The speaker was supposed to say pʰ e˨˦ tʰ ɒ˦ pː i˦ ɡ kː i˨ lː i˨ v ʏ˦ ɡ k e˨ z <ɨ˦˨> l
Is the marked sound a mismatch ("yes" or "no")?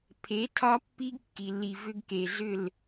yes